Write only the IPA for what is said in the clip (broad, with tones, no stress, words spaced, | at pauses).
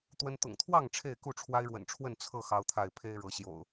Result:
t̪wə˦n t̪ʊ̰˨˩ŋt̪ʰwɑ˥˨ŋ ʈ͡ʂʰe˥˨ɪ̯ku˥˨ ʈ͡ʂʰwa˦ɪ̯ɻwə̰˨˩nʈ͡ʂʰwə˥˨n t͡sʰɤ˥˨ xɑ˦ʊ̯t̪ʰa˥˨ɪ̯ pʰe˦ɪ̯ɻɤ˨˦ɕjo̰˨˩ʊ̯